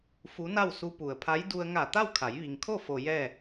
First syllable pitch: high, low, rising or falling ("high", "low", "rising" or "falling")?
rising